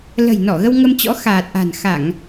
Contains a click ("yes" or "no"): no